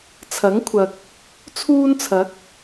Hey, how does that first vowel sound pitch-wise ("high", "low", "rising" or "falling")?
rising